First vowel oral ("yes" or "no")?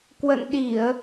yes